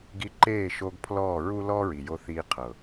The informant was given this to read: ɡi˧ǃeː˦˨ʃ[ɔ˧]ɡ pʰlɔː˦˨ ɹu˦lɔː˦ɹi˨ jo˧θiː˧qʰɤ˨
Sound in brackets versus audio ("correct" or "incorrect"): incorrect